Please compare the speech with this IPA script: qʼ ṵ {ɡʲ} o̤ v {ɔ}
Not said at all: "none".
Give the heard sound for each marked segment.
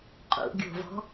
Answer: ɡʲ, ɔ̤

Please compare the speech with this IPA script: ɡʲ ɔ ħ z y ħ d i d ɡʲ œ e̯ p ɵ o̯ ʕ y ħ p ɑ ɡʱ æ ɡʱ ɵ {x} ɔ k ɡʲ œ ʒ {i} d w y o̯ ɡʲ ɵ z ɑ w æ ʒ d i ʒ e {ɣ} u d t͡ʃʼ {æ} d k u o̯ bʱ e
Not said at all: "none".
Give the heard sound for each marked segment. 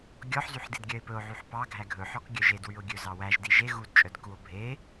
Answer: ħ, e, ɣ, œ

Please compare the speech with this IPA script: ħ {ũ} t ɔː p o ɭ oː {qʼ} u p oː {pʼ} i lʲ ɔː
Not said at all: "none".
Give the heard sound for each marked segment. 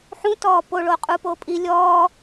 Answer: ũ, qʼ, pʼ

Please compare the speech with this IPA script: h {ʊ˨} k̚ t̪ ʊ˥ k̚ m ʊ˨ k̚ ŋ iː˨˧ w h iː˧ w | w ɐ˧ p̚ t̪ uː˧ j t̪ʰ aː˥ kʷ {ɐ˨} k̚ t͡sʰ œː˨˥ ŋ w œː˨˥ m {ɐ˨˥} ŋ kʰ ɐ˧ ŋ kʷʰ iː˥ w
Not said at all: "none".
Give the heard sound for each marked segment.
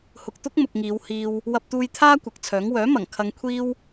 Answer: ʊ˨, ɐ˨, ɐ˨˩

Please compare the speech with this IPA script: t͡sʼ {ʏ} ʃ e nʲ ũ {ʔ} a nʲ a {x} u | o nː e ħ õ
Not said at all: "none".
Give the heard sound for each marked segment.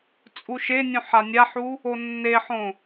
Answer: u, ħ, ħ

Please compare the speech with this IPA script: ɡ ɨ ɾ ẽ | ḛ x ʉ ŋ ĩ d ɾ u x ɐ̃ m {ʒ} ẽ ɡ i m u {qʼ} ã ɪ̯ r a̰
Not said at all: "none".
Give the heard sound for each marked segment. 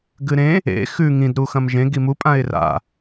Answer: ʒ, pʼ

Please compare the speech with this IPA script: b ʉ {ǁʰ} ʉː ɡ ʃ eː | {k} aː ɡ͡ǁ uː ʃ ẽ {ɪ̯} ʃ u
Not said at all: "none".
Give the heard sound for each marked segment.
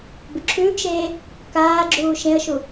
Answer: ǁʰ, k, ə̯

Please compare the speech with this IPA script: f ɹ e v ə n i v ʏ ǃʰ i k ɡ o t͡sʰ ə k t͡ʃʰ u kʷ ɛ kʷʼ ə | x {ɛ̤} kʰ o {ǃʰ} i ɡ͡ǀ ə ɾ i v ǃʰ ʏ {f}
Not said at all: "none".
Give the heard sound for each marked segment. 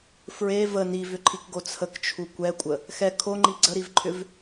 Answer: ɛ, ŋ͡ǃ, v

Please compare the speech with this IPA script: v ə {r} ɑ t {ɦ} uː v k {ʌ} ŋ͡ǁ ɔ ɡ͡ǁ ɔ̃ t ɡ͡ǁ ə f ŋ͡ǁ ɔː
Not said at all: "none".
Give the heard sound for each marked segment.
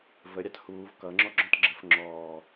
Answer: ɾʲ, h, ʌ

